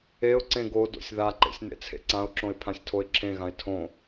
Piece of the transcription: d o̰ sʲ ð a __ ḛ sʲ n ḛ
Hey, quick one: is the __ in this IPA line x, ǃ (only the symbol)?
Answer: ǃ